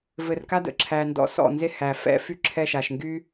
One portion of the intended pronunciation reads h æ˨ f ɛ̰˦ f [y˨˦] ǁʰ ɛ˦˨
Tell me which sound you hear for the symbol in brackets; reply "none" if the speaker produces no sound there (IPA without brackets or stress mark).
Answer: y˦